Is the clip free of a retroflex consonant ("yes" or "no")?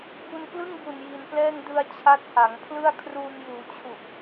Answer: yes